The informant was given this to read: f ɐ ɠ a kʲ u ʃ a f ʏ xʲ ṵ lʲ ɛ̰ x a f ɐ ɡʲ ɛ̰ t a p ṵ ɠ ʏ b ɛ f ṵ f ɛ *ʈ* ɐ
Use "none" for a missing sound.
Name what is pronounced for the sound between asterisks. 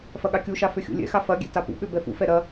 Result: ɾ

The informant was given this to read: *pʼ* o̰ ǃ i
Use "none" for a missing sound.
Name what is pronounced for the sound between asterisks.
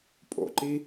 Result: pʼ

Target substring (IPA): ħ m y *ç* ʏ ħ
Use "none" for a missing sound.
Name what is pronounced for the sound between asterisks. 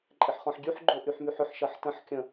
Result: ħ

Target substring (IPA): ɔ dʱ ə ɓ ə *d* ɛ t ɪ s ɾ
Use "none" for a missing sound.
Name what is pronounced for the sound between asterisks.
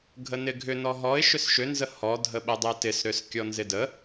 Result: dˤ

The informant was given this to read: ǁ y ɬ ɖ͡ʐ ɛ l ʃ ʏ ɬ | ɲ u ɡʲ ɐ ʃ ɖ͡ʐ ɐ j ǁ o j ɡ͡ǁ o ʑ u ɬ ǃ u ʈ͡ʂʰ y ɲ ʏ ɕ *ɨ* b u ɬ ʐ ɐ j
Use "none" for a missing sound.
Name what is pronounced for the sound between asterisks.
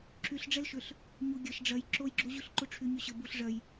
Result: ə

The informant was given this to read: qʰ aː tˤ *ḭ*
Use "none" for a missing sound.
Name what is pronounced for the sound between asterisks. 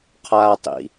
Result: ḭ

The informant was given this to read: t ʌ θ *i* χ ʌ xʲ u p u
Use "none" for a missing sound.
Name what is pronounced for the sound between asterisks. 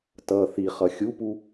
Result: i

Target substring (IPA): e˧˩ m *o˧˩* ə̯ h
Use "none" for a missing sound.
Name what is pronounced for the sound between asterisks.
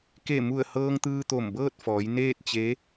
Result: u˧˩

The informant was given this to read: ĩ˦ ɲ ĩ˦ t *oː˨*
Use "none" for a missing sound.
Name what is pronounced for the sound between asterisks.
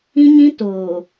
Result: oː˨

